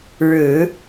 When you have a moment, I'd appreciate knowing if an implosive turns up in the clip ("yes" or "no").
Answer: no